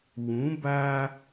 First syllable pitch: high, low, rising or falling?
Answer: rising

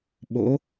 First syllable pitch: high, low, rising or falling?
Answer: rising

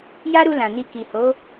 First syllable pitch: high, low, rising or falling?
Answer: high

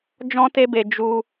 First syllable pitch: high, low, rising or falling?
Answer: high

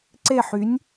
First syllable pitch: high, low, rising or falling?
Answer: falling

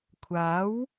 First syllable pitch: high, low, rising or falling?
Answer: rising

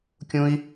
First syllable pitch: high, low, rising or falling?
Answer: high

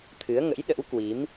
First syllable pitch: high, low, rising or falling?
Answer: rising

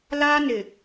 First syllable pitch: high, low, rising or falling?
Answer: high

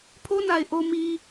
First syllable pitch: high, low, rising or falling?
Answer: high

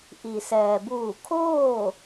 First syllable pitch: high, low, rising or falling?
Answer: low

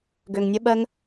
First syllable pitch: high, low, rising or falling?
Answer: low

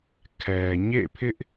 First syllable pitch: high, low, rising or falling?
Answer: low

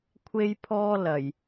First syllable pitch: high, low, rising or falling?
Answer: high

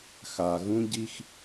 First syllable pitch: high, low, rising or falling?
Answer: low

